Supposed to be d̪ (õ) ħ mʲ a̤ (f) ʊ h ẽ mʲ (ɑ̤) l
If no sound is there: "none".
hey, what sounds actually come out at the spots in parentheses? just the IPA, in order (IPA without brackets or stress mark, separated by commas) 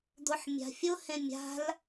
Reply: o, fʲ, a̤